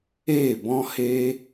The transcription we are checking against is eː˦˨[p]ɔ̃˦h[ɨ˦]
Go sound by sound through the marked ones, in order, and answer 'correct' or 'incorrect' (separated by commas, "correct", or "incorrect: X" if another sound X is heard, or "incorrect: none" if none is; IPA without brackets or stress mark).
incorrect: b, incorrect: e˦